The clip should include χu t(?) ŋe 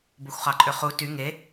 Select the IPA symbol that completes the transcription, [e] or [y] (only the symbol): y